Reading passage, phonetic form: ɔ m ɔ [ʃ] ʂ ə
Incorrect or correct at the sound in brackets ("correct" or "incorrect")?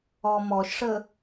correct